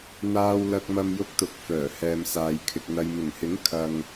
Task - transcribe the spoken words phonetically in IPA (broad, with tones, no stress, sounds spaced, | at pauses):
n̪ aː˧ w l ɐ˧ k̚ m ɐ˧ m j ʊ˧ k̚ t̪ ʊ˨˥ k̚ f œː˨˩ h ɛː˨ m s aː˨ j kʰ ɪ˨ k̚ n̪ ɐ˨ j m ɪ˨˩ ŋ h ɪ˨˥ ŋ kʰ ɐ˨ ŋ